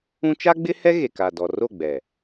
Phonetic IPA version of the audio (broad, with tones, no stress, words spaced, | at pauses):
ũ˦ t͡ʃa˦ɡ͡bɪ˦hɛ˦ ɣe˨ka˨dɔ˨ ro˦˨ɡ͡bɛ˨